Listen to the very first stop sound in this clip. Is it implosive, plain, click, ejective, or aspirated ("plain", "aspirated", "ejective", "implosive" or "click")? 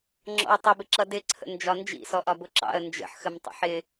click